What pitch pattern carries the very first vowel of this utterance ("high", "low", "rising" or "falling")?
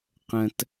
low